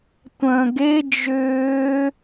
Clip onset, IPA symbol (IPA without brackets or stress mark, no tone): tʷ